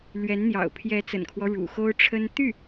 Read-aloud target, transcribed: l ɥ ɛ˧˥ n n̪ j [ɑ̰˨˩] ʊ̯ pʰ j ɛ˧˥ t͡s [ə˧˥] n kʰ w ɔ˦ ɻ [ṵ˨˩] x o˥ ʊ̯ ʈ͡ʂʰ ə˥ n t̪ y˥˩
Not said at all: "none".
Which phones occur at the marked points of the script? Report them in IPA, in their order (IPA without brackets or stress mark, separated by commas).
ɑ̰˨˩, ə̰˨˩, ṵ˨˩